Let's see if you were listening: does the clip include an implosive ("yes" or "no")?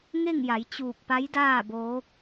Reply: no